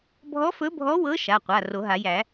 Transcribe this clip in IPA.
bʱ ɔ˧˥ f ɵ˧˥ bʱ ɔ˧˥ w ɤ˧˥ ʃ a˩˧˩ qʷ a˩˧˩ r o˨˩˦ ɦ a˨˩˦ j æ˨˩˦

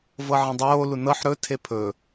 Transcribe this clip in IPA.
v ɤ ʕ ẽ dˤ oː l u n ɤ ħ ɾ ɵ tʰ e pʰ ɵ

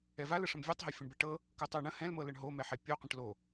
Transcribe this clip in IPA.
ɛ v a l ə ʂ ə̃ m vʲ ɤ tˤ ɦ a fʲ ə̃ ɳ b ɛ ʈ ɤ | k ɤ tˤ o ɳ ə̃ h ɛ̃ l m ɤ l ə ɳ ɦ o m ɛ ħ ɛ pʲ o qʷ ə̃ ʈ l o

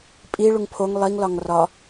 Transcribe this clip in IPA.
pʼ i ɭ u ŋ pʰ o ŋ lˠ i ŋ l ɒ ŋ r ɒ

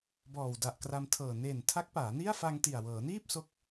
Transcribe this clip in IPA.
b ɔː˨˩ w d a˨˩ ʔ k r a˧ m tʰ ɤː˨˩ n e˨˩ n tʰ a˦˥ k̚ p aː˩˦ n i˥˩ a̯ f a˧ ŋ t i˨˩ a̯ w ɤː˩˦ n iː˥˩ p̚ s o˦˥ k̚

